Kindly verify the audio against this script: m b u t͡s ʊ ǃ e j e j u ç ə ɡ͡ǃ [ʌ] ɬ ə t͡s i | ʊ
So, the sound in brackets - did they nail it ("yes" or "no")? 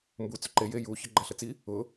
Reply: no